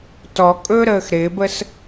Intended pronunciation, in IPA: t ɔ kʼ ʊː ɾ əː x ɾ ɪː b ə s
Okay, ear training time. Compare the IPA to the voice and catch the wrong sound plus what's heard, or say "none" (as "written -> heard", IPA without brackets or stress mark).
ʊː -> ɵː